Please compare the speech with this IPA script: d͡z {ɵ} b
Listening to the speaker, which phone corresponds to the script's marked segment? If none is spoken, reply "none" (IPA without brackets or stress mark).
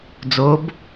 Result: o